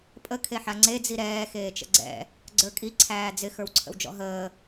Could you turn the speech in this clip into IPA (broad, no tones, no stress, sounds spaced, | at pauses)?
pʼ ə kʰ e ħ a ŋ͡ǀ e d͡z i ɾ ɛː x eː t͡ʃ ə̰ ɡ͡ǀ ɛ̰ | ɡ͡ǀ ə˞ kʼ i ǀʰ æː d͡z ɪ x ə˞ w ǀʰ ə̰ w d͡ʒ ɔ̰ ɦ əː